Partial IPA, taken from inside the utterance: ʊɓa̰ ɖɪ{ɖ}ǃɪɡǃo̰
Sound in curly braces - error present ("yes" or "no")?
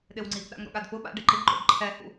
yes